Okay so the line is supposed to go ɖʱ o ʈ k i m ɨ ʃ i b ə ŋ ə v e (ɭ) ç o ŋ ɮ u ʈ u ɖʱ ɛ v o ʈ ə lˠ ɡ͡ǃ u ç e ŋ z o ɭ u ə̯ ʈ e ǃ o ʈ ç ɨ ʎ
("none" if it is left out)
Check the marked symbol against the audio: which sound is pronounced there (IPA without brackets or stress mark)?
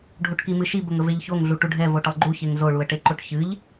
ʎ